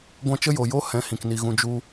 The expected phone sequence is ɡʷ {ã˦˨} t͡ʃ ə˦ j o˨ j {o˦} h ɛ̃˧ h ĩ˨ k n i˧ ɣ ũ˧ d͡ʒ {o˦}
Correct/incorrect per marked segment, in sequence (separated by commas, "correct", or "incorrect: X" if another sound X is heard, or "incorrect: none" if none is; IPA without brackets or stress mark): incorrect: ã˦, correct, incorrect: u˦